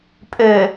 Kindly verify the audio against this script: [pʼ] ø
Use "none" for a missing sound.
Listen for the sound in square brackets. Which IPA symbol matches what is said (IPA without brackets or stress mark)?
pʼ